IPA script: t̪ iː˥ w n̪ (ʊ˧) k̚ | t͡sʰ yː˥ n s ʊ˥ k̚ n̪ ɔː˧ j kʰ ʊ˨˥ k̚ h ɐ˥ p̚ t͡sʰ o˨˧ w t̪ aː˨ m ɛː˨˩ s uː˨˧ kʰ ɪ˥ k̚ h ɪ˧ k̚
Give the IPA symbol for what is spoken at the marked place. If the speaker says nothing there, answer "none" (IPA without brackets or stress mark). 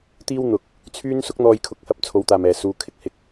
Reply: ʊ˧